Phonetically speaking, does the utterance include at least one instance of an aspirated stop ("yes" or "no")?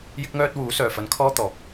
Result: yes